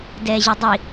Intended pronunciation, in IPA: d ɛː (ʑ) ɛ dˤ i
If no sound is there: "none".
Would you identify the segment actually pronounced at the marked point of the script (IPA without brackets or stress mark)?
ʑ